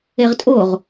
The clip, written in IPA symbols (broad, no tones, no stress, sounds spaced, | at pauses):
e ʁ tʼ o ʁ